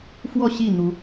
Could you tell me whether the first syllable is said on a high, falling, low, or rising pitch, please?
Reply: falling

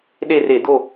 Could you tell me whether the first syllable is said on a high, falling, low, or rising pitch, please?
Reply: falling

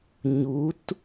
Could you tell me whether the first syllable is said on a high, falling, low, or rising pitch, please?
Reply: rising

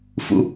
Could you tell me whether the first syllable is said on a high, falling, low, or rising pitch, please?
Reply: low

